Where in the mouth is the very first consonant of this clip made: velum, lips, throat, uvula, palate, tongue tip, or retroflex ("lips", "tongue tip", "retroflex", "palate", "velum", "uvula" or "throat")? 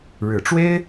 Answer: retroflex